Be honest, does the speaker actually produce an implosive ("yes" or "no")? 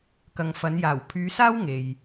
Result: no